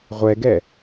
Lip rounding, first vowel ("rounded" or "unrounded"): unrounded